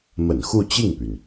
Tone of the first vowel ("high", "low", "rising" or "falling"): low